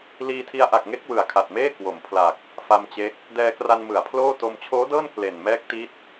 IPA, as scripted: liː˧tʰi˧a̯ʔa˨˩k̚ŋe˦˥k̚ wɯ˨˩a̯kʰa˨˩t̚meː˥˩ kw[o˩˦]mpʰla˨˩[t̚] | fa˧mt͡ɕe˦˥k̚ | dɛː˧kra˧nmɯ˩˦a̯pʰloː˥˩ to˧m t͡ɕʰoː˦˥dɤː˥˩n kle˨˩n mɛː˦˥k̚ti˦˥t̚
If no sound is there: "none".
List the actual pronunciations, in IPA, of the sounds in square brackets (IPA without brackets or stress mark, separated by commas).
o˩˦, k̚